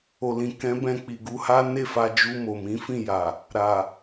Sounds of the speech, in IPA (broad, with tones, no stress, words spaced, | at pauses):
o˨lĩ˨ kɛ̃˨˦bɛ̃˧ k͡pi˨ɡu˧ha˦ ne˦˨fa˧ d͡ʒu˧ mo˨mĩ˨˦fĩ˦˨ja˨ | ɾa˨